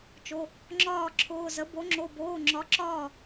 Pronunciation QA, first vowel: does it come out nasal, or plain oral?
oral